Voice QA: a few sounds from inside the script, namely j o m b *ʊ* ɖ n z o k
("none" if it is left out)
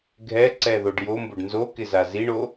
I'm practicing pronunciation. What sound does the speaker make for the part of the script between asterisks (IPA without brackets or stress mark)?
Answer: ʊ